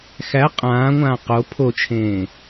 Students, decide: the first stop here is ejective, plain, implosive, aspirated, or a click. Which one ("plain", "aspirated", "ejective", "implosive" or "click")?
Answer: ejective